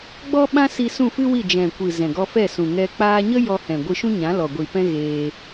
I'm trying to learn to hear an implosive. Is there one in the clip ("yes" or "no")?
yes